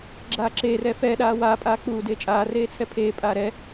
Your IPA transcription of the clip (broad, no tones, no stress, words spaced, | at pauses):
ɡ͡ǁaːǁeːrɛ fɛːɗaː waːpʼaː k͡puːdeː t͡ʃʼaːreː t͡sʰɛpʰeːpʼaː ɾɛ